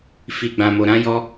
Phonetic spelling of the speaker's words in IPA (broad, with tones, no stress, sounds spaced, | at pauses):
f i˨ ɡ͡b ã˨ m o˨ ɾ ã˧ j ɔ˧